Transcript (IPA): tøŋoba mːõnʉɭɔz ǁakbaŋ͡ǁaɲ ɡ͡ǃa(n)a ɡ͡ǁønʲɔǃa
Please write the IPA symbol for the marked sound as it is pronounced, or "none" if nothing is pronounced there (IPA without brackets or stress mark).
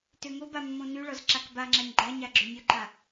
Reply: ɲ